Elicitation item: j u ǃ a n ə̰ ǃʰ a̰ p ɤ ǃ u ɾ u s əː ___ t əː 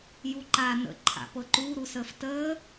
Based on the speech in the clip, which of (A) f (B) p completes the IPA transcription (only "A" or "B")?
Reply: A